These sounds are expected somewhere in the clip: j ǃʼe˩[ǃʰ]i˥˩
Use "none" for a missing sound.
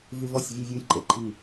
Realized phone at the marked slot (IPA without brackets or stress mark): ǃʰ